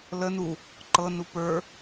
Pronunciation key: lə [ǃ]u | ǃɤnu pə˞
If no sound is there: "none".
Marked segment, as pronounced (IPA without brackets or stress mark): n